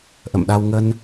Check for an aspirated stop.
absent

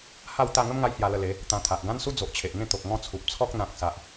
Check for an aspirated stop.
present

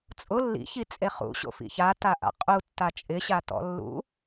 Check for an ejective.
present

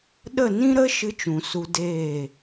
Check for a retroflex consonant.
absent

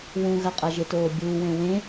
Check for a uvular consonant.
present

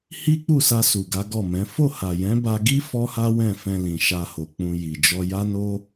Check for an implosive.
absent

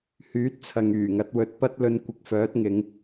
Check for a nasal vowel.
absent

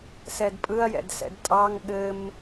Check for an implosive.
present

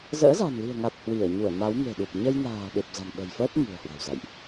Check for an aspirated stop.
absent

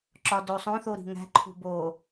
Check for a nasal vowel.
present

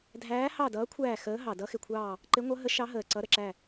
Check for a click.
present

